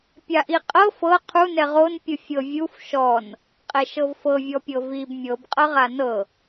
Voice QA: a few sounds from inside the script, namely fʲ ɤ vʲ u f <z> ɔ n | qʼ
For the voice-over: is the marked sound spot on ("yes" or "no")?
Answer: no